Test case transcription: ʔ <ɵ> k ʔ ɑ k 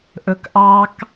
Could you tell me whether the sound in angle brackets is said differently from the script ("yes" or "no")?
no